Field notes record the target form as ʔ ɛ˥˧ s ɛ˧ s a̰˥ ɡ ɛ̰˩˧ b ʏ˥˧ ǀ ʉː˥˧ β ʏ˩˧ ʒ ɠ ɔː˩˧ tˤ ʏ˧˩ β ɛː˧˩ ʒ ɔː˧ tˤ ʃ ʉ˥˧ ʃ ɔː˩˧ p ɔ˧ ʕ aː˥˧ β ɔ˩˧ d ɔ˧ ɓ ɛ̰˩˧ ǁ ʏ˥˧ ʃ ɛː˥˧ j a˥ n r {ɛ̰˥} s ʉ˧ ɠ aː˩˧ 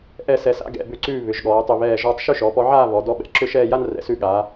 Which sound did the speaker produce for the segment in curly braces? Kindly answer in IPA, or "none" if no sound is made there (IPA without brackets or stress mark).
ɛ̰˩˧